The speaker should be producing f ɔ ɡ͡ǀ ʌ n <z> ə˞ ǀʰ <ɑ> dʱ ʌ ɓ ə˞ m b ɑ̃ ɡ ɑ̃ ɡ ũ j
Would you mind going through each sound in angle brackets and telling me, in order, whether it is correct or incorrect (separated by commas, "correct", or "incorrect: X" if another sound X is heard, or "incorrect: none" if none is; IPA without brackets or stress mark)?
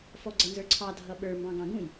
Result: correct, correct